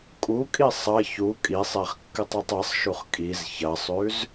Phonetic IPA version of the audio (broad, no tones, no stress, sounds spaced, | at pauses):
kʼ u kʼ i sˤ ɐ ç u kʼ i sˤ e χ kː ɨ tˤ ʉ tˤ e sˤ ʃ u χ kʼ i z ç ɐ sˤ ʉ z